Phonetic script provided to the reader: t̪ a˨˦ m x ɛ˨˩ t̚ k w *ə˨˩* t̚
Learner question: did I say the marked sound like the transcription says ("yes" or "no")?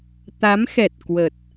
yes